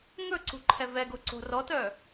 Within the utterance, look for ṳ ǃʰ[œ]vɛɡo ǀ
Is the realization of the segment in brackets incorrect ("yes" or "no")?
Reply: yes